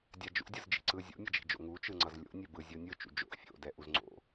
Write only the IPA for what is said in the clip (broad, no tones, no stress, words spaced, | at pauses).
dʲad͡ʒṵdʲɯz d͡ʒi̤ǀɯ zʲo̰mʲʌd͡ʒi̤d͡ʒo̰ ŋut͡ʃɯŋ͡ǀʌz lʲo̰ nʲɛbɯ zʲonʲɯ t͡ʃṵd͡ʒo̰ʔ fʲo̰dɛ ʔuzŋ͡ǀo̰